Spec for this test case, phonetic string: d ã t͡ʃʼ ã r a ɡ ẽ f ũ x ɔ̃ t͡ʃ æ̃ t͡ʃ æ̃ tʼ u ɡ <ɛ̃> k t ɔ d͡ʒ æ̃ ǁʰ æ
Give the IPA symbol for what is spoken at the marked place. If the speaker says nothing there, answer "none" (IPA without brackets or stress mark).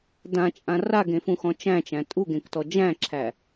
ẽ